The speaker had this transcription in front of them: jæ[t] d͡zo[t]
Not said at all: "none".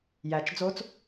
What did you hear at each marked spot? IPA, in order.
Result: t͡ʃ, t͡s

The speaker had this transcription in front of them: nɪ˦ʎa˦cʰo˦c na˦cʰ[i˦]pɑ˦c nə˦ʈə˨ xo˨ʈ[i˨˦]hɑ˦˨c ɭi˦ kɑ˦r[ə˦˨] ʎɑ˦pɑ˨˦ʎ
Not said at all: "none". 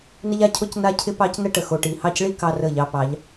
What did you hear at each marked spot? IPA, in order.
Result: ɪ˦, i˨, ə˦˨

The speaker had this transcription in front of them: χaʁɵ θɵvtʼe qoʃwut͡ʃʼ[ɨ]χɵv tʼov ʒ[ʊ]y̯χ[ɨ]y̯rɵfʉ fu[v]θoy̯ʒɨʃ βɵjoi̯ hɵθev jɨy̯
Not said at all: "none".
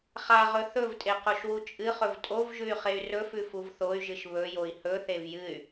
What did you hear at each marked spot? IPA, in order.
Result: ɨ, ʉ, e, v

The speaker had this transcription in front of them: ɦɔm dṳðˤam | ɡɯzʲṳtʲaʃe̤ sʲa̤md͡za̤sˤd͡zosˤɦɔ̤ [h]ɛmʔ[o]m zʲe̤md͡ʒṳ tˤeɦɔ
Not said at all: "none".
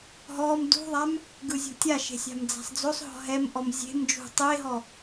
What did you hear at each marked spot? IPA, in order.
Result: ɦ, ɔ

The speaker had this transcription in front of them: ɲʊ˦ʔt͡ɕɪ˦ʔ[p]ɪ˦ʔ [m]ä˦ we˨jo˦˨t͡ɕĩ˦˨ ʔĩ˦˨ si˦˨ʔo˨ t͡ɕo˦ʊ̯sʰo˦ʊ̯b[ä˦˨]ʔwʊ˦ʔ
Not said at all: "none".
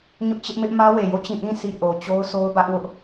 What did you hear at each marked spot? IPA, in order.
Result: m, m, ä˦

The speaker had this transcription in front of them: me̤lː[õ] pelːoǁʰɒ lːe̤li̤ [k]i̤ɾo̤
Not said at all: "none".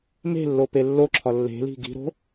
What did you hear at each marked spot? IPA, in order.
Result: o, ɡ

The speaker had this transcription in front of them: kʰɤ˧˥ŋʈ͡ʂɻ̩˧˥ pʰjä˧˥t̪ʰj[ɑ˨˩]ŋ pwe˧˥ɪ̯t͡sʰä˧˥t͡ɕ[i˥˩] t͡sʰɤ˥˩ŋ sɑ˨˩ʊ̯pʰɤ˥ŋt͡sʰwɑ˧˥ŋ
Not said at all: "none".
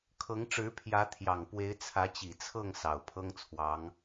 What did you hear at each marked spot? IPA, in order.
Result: ɑ˨˩, i˨˩

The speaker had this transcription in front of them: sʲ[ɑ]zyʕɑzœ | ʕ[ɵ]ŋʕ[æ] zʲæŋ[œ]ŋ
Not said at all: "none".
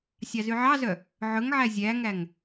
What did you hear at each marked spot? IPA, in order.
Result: ɑ, ɵ, æ, æ

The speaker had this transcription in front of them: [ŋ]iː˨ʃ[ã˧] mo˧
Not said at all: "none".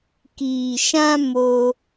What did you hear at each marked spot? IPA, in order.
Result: k, ã˧

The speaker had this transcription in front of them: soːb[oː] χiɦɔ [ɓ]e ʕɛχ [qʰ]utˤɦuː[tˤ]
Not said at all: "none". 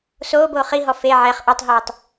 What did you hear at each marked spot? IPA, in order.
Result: oː, f, ʔ, tˤ

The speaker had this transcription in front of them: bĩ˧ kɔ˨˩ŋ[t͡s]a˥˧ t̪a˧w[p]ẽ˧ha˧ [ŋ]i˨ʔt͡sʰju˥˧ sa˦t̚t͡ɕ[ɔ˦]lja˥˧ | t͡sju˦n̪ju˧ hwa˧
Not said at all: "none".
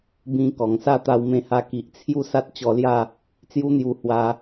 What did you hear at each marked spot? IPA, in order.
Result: s, m, k, ɔ˧

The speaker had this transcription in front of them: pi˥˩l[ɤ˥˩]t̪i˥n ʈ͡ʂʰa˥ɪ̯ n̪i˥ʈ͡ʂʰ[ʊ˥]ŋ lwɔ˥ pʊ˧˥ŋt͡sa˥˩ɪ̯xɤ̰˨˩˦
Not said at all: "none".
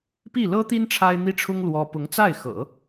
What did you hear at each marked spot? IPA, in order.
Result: ɤ˥, ʊ˥

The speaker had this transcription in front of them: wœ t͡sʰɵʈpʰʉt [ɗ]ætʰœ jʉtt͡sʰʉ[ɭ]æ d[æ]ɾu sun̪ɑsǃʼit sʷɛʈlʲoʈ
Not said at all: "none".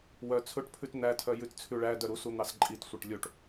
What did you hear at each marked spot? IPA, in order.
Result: n̪, ɭ, œ

